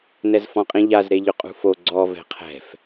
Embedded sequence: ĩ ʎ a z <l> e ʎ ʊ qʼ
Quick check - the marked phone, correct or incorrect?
incorrect